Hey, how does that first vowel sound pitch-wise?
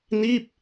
falling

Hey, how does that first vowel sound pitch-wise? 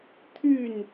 falling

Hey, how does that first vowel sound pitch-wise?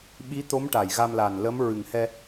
rising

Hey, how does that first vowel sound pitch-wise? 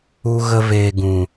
high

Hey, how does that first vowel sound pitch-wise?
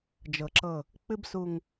low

